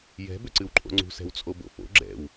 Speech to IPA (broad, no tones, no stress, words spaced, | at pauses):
jɛ̤ bʏǀɨwǃʼo̰ŋ͡ǀṳ sɛ̤wt͡sʼobo̰fo̰ ɡ͡ǁɛ̰w